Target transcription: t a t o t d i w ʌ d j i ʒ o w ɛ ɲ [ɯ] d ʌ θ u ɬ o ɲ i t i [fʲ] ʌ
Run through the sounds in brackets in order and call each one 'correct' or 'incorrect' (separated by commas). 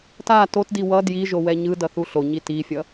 correct, correct